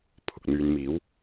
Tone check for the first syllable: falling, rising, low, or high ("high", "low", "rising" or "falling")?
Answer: low